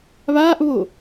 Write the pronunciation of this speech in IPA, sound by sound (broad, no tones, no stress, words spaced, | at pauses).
βaːʔβo